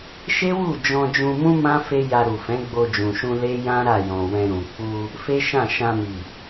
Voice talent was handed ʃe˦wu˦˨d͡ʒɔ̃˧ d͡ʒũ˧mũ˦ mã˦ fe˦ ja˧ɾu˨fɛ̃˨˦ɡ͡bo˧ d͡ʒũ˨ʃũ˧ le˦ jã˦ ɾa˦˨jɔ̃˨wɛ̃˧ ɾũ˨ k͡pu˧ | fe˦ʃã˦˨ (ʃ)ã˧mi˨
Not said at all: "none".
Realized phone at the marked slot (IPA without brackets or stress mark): ʃ